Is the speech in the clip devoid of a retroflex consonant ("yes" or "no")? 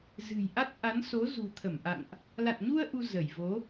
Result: yes